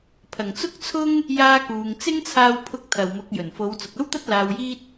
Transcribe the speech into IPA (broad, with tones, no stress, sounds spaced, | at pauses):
pʰ ɐ˨˩ ŋ t͡s ʊ˥ k̚ t͡sʰ ʊ˥ ŋ | j aː˧ k uː˨ ŋ t͡s ɪ˥ ŋ t͡sʰ aː˧ w pʰ ʊ˧ k̚ t̪ʰ ɐ˨ w m ʊ˨˥ k̚ j ɵ˨˩ n f o˨˧ w t͡s ʊ˨ k̚ ɐ˥ w t̪ ɐ˥ t̚ l aː˧ w j iː˥ t̚